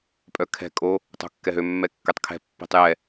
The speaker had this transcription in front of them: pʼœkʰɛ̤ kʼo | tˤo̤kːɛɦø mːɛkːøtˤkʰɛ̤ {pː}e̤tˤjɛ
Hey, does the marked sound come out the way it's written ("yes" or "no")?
yes